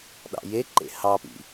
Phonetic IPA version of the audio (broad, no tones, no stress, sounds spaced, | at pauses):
ɗ ɑ̰ j e ǃ ḛ h ɑ p ḭ